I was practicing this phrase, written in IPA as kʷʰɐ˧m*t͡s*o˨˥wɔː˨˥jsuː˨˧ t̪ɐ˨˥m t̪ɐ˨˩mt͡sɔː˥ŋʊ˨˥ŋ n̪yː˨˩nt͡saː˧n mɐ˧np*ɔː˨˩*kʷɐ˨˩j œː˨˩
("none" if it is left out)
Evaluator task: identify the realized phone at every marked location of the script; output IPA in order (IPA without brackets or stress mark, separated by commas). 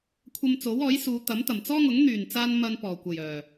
t͡s, ɔː˨˩